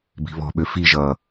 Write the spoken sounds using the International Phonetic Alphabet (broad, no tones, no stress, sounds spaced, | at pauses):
b i̤ β ɔ̤ ɓ ø f i ʒ ʌː